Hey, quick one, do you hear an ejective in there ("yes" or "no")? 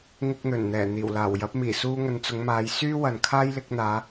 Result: no